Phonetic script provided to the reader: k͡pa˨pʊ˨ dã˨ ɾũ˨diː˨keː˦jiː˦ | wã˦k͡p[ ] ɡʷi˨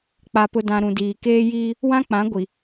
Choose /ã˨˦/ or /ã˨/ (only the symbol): ã˨˦